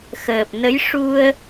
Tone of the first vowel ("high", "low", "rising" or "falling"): low